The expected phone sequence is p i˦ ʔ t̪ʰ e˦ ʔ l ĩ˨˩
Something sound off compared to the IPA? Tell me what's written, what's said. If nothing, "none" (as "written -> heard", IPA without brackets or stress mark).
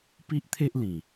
none